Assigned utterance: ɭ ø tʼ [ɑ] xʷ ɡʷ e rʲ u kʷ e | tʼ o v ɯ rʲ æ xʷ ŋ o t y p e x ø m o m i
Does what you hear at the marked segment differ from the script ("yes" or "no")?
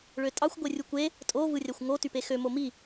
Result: no